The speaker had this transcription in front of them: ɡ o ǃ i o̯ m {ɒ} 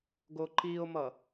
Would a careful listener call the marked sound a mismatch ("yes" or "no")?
yes